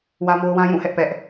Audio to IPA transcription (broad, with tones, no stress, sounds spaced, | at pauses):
w ä˦ m o˦ ʊ̯ w ã˦ j ũ˦˨ h ɛ˦ ʔ p ɛ˦ ʔ